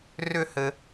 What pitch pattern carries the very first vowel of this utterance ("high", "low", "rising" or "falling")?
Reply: falling